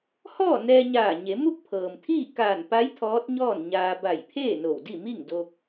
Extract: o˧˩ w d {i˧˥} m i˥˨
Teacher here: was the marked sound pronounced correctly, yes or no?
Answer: no